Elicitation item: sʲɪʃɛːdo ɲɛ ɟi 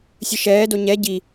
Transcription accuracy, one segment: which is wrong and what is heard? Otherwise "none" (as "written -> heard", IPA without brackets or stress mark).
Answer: ɪ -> ɨ